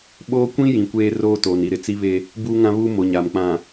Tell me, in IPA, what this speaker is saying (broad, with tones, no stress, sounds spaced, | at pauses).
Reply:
ɓ oː˦ kʷ ĩ˦ j ĩ˨ kʷ eː˦ r oː˦ t oː˨ n i˨ ɾ ɪ˨ t͡s i˦ β e˦ | b uː˦ ŋ ã˦ β uː˦ m o˨ ɲ a˨ m k͡p ã˨